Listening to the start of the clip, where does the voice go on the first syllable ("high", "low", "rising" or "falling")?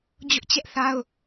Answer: high